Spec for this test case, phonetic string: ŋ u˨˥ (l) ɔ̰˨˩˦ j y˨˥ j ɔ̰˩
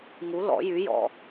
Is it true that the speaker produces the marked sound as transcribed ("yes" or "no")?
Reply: yes